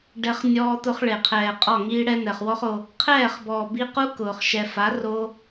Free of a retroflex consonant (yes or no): no